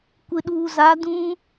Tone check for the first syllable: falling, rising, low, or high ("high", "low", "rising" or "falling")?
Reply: low